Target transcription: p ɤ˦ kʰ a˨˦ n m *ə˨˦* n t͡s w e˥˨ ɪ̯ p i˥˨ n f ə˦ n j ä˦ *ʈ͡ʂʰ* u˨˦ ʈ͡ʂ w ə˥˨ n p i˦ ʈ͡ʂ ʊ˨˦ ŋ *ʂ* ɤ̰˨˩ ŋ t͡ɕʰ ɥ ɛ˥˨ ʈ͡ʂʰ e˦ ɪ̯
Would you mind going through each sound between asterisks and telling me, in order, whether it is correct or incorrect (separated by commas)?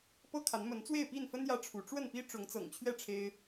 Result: correct, correct, incorrect